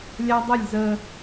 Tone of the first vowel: high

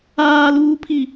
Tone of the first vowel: high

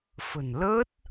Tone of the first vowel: low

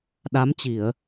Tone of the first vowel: rising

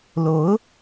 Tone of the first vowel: rising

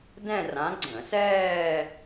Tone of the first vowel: falling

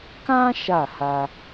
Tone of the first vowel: high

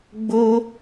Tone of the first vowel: high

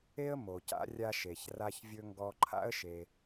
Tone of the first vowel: high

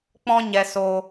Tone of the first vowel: high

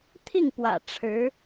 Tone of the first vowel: falling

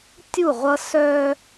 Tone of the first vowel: falling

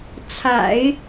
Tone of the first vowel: low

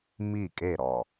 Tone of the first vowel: falling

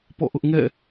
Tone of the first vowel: falling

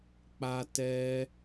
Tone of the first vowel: high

